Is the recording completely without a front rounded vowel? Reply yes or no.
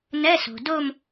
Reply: yes